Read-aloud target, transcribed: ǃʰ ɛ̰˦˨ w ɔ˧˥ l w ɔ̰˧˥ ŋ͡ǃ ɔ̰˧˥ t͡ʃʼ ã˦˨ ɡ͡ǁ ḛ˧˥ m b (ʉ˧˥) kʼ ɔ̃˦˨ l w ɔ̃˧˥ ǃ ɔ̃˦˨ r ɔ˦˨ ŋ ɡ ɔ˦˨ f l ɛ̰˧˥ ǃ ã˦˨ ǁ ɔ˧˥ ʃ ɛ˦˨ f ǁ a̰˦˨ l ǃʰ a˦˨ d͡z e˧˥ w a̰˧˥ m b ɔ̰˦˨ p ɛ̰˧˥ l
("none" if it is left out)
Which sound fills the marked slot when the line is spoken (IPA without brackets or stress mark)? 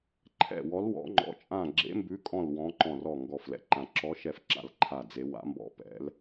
ʉ˧˥